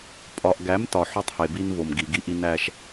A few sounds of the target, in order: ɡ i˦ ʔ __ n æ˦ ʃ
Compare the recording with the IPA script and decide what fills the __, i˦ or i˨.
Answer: i˦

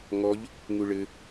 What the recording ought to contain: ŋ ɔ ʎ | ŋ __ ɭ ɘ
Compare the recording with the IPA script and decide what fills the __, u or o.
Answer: u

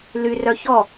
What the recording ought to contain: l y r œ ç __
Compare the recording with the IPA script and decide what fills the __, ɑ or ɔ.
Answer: ɔ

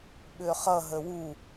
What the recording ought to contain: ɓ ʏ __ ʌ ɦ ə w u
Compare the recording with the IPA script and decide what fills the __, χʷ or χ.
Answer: χ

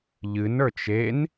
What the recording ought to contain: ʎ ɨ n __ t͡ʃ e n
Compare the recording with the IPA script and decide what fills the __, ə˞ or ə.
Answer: ə˞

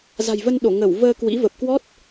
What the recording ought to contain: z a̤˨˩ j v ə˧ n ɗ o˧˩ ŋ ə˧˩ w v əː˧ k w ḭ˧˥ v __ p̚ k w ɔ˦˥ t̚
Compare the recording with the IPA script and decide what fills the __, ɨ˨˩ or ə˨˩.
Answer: ə˨˩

